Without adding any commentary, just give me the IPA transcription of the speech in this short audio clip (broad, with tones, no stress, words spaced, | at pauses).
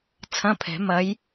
t͡sʰɐ̃˧˥˧pʰɛ̤˨˩˦ mɐ˨˦j